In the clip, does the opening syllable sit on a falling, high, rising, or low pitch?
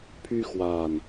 high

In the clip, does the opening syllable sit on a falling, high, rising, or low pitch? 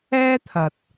high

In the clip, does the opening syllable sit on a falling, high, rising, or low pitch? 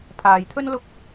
low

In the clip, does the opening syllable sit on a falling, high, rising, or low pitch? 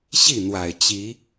falling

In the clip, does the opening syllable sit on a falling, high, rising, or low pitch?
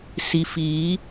low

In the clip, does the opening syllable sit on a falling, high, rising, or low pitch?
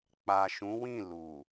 low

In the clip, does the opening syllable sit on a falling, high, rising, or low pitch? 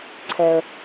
low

